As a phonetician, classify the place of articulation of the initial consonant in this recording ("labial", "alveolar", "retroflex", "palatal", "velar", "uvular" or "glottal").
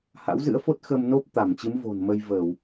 glottal